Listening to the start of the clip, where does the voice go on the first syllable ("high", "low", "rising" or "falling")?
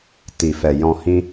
low